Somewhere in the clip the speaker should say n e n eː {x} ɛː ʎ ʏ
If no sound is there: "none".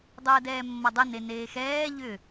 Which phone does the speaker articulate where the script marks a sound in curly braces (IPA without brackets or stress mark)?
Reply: x